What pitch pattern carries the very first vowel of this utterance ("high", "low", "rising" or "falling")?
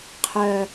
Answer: low